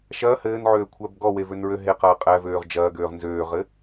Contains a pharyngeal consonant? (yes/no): yes